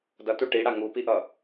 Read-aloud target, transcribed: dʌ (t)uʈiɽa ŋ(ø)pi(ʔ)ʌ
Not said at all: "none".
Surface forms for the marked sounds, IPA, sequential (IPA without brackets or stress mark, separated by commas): t, u, ʔ